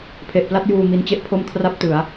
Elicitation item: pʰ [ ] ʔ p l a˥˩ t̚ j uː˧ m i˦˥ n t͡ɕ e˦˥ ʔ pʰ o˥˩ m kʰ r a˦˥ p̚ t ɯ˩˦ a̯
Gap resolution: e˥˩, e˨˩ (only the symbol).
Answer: e˨˩